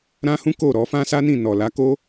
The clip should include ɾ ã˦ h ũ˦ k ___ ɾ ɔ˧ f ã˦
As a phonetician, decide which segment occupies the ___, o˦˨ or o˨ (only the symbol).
o˦˨